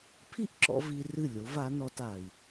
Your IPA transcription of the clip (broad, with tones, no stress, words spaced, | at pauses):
pʰi˥ʔǁɔ̰˧ vi˧ rɨ˥˩lʲo˩˥va˩˥nɔ˧t a˩i̯